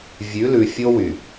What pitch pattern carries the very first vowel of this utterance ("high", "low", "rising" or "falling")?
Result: rising